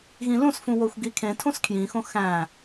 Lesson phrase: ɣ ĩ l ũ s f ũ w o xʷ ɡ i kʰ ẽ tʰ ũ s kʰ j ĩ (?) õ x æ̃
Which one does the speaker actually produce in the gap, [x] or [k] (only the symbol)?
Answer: x